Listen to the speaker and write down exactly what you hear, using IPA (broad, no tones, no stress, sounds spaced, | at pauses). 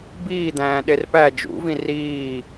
b iː d̪ æ̃ː ɗ e r p æ d͡ʒ ṵ v ĩ r iː